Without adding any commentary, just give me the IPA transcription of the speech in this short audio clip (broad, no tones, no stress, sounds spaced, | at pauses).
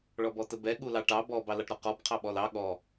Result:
ɭ ɔ b ɔ t ə b ɛ ɠ u l ɑ ʈ ɑ b ɔ b ɑ l ɑ ʈ ɾ ɔ q ɔ b qʰ ɑ ɓ ɔ l ɑ ɠ ɔ